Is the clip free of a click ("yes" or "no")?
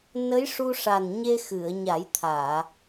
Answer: yes